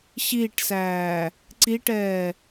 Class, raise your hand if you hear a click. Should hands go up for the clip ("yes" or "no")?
yes